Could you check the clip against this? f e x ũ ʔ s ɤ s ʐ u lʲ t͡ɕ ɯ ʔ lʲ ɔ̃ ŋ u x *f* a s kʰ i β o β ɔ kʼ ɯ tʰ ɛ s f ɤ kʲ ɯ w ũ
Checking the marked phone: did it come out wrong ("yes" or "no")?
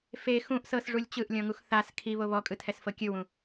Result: yes